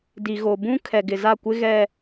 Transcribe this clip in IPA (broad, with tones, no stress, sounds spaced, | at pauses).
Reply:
d i˨ ɣ o˨ b ũ˦ kʰ ɛ˨ ɡ ɪ˨ z a˦˨ kʷ ɪ˦ ɣ ɛ˦